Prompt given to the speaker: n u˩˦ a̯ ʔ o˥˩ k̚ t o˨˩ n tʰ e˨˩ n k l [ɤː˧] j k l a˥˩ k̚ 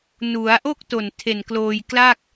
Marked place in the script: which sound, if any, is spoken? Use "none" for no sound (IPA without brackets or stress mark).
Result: oː˧